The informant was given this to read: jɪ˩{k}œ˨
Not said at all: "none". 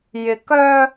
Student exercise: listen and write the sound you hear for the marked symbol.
k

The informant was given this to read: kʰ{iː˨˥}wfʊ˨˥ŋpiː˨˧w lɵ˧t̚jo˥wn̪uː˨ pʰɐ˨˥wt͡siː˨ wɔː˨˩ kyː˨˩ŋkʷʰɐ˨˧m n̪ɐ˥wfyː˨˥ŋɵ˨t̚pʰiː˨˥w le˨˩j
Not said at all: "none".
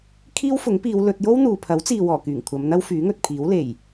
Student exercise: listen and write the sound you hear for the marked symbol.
iː˥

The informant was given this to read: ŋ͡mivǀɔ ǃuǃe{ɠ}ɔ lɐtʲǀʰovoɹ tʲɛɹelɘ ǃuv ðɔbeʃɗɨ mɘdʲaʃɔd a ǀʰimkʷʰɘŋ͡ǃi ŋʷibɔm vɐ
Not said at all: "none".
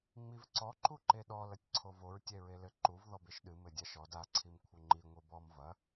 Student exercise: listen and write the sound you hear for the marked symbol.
ɗ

